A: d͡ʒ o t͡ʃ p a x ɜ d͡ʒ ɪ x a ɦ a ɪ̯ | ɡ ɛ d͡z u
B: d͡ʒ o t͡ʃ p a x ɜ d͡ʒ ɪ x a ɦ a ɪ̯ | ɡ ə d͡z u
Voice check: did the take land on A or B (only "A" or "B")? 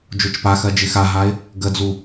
B